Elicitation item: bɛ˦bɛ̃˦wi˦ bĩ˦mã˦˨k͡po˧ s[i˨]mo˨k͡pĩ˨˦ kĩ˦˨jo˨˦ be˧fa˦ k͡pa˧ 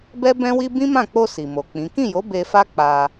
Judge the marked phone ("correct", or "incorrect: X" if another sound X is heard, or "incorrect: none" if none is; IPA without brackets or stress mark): correct